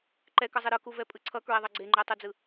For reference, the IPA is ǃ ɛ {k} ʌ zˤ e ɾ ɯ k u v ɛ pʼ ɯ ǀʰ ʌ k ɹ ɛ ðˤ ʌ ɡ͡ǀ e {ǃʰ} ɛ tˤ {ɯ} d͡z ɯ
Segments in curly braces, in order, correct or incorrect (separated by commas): correct, incorrect, incorrect